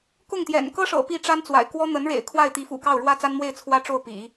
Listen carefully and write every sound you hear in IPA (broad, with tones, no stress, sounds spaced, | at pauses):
k ʊ˥˩ ŋ t̪ j ɛ̰˨˩ n k ɤ˥ ʂ ɤ̰˨˩ p i˥˩ ʈ͡ʂ a˥ n t͡s w a̰˨˩ ɪ̯ k w ɔ˥ n̪ ə˧˥ n ɻ ḛ˨˩ ɪ̯ kʰ w a˥˩ ɪ̯ t̪ i˧˥ f ṵ˨˩ k ɑ˥˩ ʊ̯ ɻ w ä˥ t͡s a˥ n m w e˥˩ ɪ̯ t͡sʰ w ä˥ ʈ͡ʂ o˥˩ ʊ̯ p ḭ˨˩˦